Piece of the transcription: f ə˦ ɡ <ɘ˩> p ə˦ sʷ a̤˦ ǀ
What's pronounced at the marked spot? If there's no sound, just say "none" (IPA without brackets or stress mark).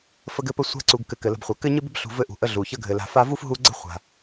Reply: ɘ˦